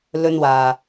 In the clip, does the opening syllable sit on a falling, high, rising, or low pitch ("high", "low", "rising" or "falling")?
high